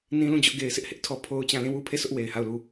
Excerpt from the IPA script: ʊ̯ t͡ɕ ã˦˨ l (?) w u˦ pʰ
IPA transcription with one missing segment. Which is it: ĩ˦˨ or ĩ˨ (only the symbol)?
ĩ˦˨